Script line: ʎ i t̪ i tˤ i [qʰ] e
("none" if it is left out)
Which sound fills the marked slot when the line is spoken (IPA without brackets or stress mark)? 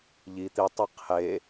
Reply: qʰ